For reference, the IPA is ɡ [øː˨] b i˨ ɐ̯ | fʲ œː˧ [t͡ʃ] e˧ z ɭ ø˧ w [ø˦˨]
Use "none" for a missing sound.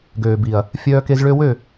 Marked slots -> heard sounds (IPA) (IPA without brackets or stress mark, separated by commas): øː˨, k, ø˦˨